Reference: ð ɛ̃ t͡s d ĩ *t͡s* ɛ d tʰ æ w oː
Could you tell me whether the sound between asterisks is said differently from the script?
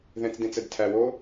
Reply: no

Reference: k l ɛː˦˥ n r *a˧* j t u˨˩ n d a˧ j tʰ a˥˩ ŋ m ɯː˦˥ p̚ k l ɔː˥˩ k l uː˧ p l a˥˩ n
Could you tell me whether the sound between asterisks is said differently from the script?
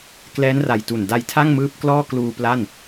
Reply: yes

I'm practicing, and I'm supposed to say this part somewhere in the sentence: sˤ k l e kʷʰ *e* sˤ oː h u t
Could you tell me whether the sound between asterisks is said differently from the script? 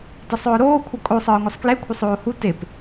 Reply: yes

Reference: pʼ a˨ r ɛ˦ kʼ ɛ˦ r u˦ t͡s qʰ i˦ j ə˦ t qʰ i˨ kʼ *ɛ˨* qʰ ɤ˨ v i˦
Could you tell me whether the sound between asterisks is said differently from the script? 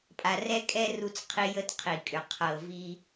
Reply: yes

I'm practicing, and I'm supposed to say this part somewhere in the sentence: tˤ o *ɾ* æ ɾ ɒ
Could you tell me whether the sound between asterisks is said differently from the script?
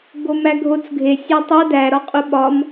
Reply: yes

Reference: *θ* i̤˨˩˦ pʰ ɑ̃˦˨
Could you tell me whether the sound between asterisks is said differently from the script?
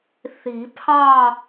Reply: no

